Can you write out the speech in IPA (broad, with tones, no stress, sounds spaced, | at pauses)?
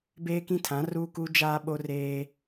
b eː˦ k ĩ˦ tʰ ã˨˦ r uː˦ k u˦ d͡ʒ aː˦ ɓ o˦ r eː˦